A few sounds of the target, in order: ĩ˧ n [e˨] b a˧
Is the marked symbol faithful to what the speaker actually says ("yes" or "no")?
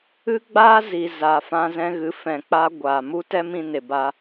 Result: yes